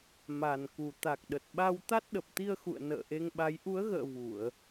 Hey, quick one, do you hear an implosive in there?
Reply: yes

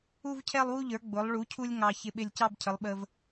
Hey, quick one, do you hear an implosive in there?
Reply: yes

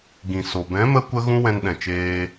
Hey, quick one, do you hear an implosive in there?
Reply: yes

